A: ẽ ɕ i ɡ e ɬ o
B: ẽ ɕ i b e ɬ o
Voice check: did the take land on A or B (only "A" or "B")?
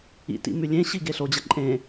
A